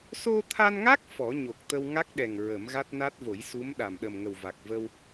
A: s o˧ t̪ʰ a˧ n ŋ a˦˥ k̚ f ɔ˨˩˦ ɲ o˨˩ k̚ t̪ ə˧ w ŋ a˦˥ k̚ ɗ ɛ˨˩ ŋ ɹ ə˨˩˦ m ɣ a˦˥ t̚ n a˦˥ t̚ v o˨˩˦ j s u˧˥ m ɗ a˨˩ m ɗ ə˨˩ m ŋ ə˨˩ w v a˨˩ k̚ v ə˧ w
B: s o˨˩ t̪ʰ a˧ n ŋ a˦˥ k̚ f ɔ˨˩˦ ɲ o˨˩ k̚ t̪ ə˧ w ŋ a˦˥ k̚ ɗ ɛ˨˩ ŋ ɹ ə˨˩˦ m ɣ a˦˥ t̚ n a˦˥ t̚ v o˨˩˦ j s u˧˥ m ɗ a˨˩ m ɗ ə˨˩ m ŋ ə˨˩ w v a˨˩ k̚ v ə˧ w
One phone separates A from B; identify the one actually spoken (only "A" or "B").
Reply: A